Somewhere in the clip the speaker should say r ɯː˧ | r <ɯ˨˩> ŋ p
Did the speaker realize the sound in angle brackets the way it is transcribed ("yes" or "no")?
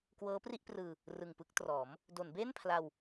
yes